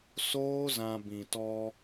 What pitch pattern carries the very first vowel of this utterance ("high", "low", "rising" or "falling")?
high